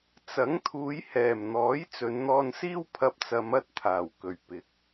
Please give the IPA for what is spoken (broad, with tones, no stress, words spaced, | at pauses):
t͡sɐ˨˥ŋt̪ʰuː˨˧jhɛː˨˩mn̪ɔː˨˥j t͡sɵ˨˧nn̪ɔː˧nsiː˥w pʰɐ˧p̚t͡sɐ˨˧mɐ˥t̚t̪ʰaː˨˩w kɵ˨˩ɥpɪ˨˥k̚